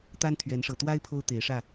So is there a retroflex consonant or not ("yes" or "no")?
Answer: yes